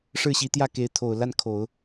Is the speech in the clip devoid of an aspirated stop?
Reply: no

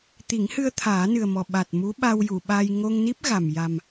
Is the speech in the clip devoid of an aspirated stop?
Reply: no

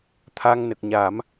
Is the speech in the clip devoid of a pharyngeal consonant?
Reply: yes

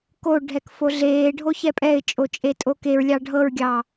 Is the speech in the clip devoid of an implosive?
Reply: yes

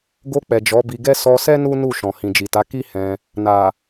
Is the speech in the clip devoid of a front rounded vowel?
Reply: yes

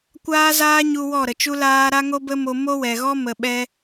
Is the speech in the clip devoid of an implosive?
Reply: no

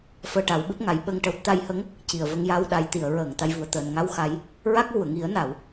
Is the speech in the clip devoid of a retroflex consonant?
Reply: no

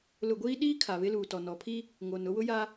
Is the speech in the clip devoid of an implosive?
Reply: no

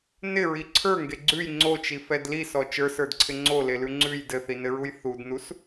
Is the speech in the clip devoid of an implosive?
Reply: yes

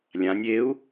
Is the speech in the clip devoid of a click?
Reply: yes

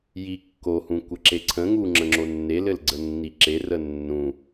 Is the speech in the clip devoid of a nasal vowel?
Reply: no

